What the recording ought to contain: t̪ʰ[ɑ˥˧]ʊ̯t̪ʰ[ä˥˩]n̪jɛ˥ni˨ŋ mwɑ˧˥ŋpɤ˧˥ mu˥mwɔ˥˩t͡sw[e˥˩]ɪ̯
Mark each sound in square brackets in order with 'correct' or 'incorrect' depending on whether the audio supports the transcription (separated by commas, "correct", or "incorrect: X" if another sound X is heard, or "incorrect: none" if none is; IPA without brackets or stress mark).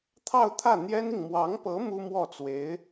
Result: correct, correct, incorrect: e˧˥